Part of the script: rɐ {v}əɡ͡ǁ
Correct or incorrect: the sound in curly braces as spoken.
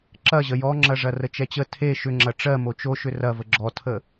correct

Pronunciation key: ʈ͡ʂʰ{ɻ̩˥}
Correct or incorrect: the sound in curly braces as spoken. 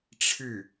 incorrect: ɻ̩˥˩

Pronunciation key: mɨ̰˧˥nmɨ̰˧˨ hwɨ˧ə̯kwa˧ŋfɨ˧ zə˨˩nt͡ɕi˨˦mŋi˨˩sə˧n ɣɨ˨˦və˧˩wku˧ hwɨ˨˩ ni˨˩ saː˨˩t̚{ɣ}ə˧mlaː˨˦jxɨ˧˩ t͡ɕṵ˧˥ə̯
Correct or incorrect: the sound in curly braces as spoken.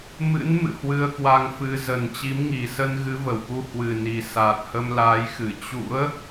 incorrect: h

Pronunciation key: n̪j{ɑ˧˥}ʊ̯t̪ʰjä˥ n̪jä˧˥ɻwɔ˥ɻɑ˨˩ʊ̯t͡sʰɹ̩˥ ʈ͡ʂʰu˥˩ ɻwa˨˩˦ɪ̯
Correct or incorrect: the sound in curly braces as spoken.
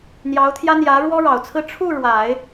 correct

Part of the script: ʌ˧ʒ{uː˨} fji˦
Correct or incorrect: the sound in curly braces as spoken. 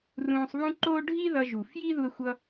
incorrect: u˨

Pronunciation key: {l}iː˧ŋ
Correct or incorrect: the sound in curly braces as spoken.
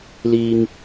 correct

